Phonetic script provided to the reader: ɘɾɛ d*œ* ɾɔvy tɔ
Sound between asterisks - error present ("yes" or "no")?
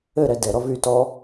yes